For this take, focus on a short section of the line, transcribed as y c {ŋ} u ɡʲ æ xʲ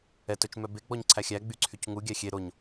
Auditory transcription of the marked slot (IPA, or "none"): ŋ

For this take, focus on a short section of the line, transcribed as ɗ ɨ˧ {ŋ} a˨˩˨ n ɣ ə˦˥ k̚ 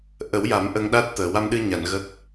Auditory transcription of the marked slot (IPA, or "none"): ɲ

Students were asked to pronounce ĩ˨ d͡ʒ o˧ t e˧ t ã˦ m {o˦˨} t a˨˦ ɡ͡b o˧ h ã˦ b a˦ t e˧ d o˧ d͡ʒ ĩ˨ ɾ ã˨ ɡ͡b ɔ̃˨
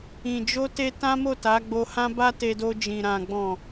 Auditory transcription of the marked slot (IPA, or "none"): o˦˨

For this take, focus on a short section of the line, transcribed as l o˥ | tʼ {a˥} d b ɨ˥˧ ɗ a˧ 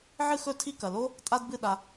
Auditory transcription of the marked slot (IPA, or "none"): a˥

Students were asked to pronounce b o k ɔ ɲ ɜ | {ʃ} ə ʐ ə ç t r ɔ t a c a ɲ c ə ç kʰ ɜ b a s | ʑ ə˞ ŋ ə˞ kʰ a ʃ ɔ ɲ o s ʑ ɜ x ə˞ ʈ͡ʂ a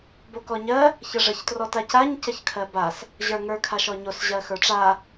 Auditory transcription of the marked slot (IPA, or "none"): ç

